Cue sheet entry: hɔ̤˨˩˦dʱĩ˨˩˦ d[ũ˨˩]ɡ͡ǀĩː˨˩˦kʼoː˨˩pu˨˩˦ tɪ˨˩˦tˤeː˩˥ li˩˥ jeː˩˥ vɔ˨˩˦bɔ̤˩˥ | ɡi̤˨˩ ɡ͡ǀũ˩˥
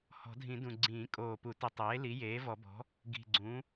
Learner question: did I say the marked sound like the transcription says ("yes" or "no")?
yes